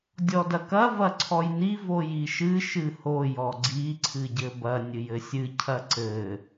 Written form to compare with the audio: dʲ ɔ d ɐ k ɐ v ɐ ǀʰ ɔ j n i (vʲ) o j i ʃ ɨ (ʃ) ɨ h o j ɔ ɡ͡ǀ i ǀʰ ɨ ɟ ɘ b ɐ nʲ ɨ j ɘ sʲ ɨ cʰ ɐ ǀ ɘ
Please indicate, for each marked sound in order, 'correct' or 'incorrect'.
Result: incorrect: v, correct

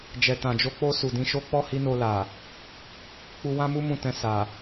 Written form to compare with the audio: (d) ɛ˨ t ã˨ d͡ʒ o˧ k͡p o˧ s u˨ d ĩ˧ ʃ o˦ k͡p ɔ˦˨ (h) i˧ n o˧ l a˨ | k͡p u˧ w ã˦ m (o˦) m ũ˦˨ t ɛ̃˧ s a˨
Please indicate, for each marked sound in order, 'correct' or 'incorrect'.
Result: incorrect: d͡ʒ, correct, incorrect: u˦

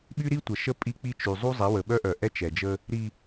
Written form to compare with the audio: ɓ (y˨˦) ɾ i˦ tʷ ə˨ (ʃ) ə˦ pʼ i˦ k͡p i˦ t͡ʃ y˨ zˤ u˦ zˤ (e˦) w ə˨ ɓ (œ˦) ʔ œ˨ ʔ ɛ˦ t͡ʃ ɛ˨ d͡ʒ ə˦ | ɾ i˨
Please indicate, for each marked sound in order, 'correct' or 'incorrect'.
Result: incorrect: y˦, correct, incorrect: e˨˦, correct

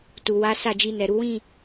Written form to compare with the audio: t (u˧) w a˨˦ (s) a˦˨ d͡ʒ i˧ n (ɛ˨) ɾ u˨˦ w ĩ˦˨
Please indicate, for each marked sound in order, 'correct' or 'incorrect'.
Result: incorrect: u˨, correct, correct

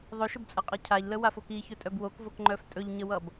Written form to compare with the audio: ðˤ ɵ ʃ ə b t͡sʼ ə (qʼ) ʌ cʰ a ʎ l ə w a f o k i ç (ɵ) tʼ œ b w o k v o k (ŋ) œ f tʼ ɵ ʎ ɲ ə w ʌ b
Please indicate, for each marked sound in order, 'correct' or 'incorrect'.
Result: correct, correct, incorrect: ŋ͡ǃ

